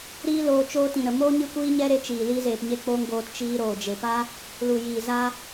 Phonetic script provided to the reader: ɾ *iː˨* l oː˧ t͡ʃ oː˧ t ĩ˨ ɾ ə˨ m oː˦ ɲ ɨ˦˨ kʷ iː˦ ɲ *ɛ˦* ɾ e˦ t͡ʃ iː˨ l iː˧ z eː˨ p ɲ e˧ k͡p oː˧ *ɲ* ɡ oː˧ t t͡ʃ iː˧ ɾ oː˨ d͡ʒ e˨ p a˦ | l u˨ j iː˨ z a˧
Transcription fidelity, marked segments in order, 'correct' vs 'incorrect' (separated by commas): incorrect, correct, incorrect